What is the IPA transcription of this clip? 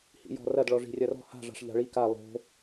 h ḭ j ɔ̤ r ɐ d ɭ ɔ ʐ i̤ rʲ ɐ r ɔ̤ h a̤ ʐ a̤ ʂ ʎ a̤ ɭ i k a lˠ o̤

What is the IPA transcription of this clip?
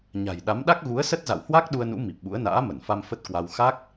ɲ a̤˨˩ j ɗ a˨˦ m ɗ a˦˥ k̚ ɣ u˨˦ ə̯ s ə˦˥ t̚ z a̰˧˨ w h w a˦˥ k̚ ɗ u˧ ə̯ n ṵ˧˥ m i˨˩ p̚ ɓ ṵ˧˥ ə̯ n a̰ː˧˥ m ə˧˩ n f a˧ m f ə˦˥ t̚ k w a˧ w x a˦˥ k̚

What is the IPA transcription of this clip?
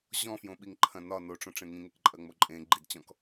ʑ ɔ̃ f j õ ɓ i ŋ ǃʰ ɐ̃ n ɒ n o ʈ͡ʂ õ ʈ͡ʂ ẽ ŋ ĩ ŋ e k ǃʼ ɐ ŋ͡m o ǃʼ ẽ ɡ͡ǃ i d t͡ɕ ɔ̃ k

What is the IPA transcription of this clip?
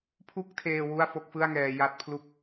pʰ u˥˩ k̚ tʰ eː˧ w u˥˩ a̯ f o˥˩ k̚ f ɯ˥˩ a̯ ŋ ɛː˧ j a˥˩ t̚ pʰ l u˥˩ k̚

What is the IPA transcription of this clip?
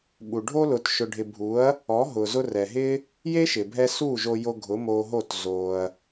ɓ u˨ ɖʱ o˦ l ʊ˨ t ʃ ʊ˨ ɖʱ ɪ˨ bʱ u˨˦ ɐ̯ | ɔ˨˦ ɦ ʊ˨ z ʊ˧ r ɛ˨ ɦ ɪ˦ | j e˦ ʃ ɪ˨ bʱ ɛ˧ s u˦˨ ʒ o˧ j o˧ ɡʱ ʊ˨˦ m o˧ ɦ o˦˨ t z o˧ ɐ̯

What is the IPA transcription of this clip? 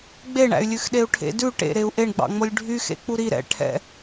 ɡ͡b e ɳ æ̰ y̯ lʲ ʉ x ɗ e u̯ ʈʰ ḛ d ʉ ʈ ḛ ɾ e u̯ ʔ e ɳ ɡ͡b ɑ̰ ŋ͡m o lʲ ɖʱ y x ḛ k͡p u ɾ i ɾ ɛ̰ ʈʰ ɛ̰

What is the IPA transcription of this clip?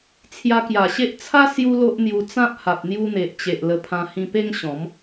t͡sʰ j a˧ k j a˨˩ ɕ e˦ ʔ t͡sʰ a˦ s j u˦ l o˦ ʔ n̪ j u˧ t͡s ã˦ p̚ h a˨ p̚ n̪ j u˧ n̪ e˨ ʔ t͡ɕ e˨ ʔ l ə˧ pʰ ã˧ h ĩ˧ p e˦ ŋ ɕ ɔ̃˨˦ m

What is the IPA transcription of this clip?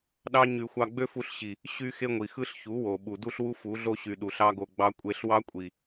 ɗ ɑ˦ ɲ y˧ xʷ ɑ˧ ɡ͡b ø˦ f u˧ ɬ ɕ i˨ | ɕ y˦ x e˦ ŋʷ i˨ x ɯ˦ ɬ ç u˨˦ w o˨ ɓ u˨ d u˦ ɬ w u˦ f u˨˦ ɮ o˦ ɕ y˨ ɗ u˨ ɬ ɑ˦ ɡ o˧ ɡ͡b ɑ˦ kʷʼ e˧ ɬ w ɑ˦ kʷʼ i˨

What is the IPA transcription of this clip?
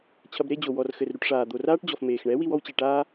t͡ɕʰ ɐ˧ b ɾ e˦ d͡ʑ o˨ w ɔ˨ r x ɘ˨ r ɾ u˧ ʈ ʂ aː˨ d̪ o˨ r aː˦ ʈ d͡ʑ ɔ˨ f m eː˨ x ɳ ɛ˨˦ w i˧ w ɔ˦ w t͡ɕ e˨ ʈ aː˦

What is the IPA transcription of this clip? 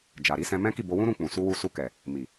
d͡ʒ a˨ ɾ i˨˦ s ɛ̃˧ m ɛ̃˦ k i˦˨ b o˧ w ũ˦ ɾ ũ˦˨ k͡p ũ˨ s u˧ w u˧ s u˧ k ɛ˨ | m i˨

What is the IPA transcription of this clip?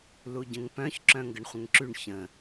l u ɟ ə̃ ŋ p œ̃ ç ǁ œ̃ ŋ ɡ ə ɳ χʷ ə̃ ŋ ǁ y ɳ ç ə̃

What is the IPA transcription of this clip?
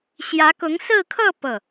ɕ j ä˧˥ k ʊ˧˥ ŋ s ɹ̩˥˧ kʰ ɤ˥˧ p ɤ˥˩

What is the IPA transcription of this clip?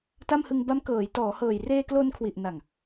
t a˥˩ m h ɯ˧ ŋ b a˦˥ m k ɤː˩˦ j t ɔː˩˦ h ɤː˨˩ j r eː˧ k l o˧ n kʰ w i˨˩ ʔ n a˨˩ ŋ

